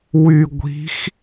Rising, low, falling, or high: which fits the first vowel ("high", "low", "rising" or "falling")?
low